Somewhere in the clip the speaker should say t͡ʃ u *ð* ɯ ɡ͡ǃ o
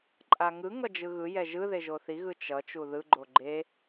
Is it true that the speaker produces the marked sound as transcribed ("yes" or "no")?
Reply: yes